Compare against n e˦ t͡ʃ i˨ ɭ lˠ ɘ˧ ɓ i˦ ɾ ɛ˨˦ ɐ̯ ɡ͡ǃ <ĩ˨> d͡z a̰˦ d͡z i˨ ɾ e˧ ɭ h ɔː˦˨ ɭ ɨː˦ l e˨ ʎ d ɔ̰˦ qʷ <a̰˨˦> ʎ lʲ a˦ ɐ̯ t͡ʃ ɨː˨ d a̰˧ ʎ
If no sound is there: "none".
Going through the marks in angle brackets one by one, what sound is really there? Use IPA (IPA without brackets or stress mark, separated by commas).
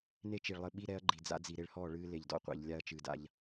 i˨, a̰˧